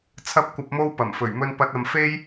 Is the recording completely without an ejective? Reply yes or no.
yes